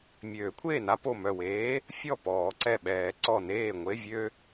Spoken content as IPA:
mʲ øː˨˩˦ kʷʰ eː˥˩ n a˥ p o˧˩ m œ˧˩ w eː˨˥ | fʲ ɔ˥˩ p ɔː˨˩˦ ǀ ɛ˧˩ ɓ ɛː˨˩˦ ǀ ɔ˧˩ n eː˥˩ ŋʷ e˧˥˧ vʲ ø˥

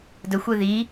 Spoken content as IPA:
d ə xʷ e ð i

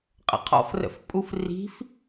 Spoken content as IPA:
qʼ ə̰ qʰ ɔ̰ f r ə̰ f pʼ u f r i̤ f

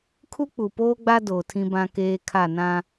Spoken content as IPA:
kʰ u˦ k͡p u˨ p oː˦ ɡ͡b a˦ d oː˨ tʰ ĩ˦ b ã˦ k eː˦ kʰ a˦˨ n ã˦

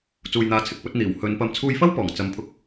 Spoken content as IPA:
t͡s uː˨ j n̪ aː˨˧ t͡sʰ ɪ˨˥ k̚ p ɵ˨˥ t̚ n̪ iː˨˩ w h ɵ˨˧ n p ɐ˨˧ m t͡sʰ uː˧ j f ɐ˥ w p ɔː˨˩ ŋ t͡s ɐ˨˧ m pʰ ʊ˧ k̚

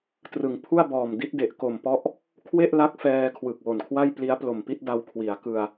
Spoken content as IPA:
t r ɯ˩˦ ŋ pʰ u˥˩ a̯ b ɔː˨˩ m d i˦˥ t̚ d e˨˩ ʔ k o˨˩ m p ɔ˦˥ ʔ | kʰ w e˥˩ ʔ l a˦˥ k̚ f ɛː˧ kʰ w ɯ˨˩ k̚ w o˨˩ n kʰ w a˥˩ j p l i˦˥ a̯ p l o˨˩ m p i˥˩ t̚ d a˦˥ w kʰ w i˩˦ a̯ k ɯ˧ a̯

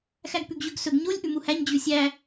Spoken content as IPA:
x æ ɡ p ʉ ɡ ʑ ʉ ɡ s ɵ ɡ ɲ o lʲ ʔ ʉ m u h æ ɲ d͡ʑ ʉ sʲ æ

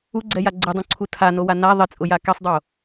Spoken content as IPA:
u ɡ͡ǀ ɛ j a ɡ͡ǀ ɪ dˤ ũ ǀʰ u tʰ a n o w a n a ðˤ ɪ t͡sʼ ʊ j a k ɛ sˤ dˤ o

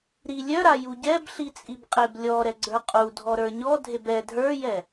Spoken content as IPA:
ɾ i lʲ œ ɾ a j u ɟ ɛ b ɬ i t͡sʼ i b qʼ e b lʲ ɔ ɾ ɛ ɡ͡ǀ ə˞ qʼ u dʱ ɔ ɾ ə˞ ɲ ɔ dʱ e b ɛ dʱ ə˞ j ɛ

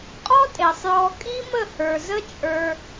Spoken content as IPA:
qʼ ɔ˦ tʼ e˨ sˤ j ɔ˧ kʼ i˦ m ə˦˨ h ə˞˨ z ə˦ t͡ʃʼ ə˞˦

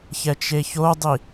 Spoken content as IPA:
ç ɛ t͡ʃ e ç o dˤ i

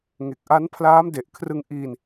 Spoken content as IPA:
ŋ e˨˩ k̚ ʔ a˦˥ n pʰ l aː˦˥ m d e˨˩ ʔ kʰ r ɯ˧ ŋ ʔ iː˧ n

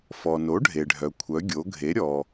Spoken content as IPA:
f ɔ˩ n o˩˥ ɖʱ e˩ ɖʱ œ˩ kʷʰ œ˩˥ ɡʲ o˩˥ ɡʱ e˩˥ ɾʲ ɔ˩

